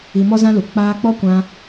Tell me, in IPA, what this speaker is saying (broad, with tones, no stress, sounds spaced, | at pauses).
i˧ m ɔ˦ z ã˦ l u˨ k͡p aː˧ k͡p ɔ˦ kʷ ã˧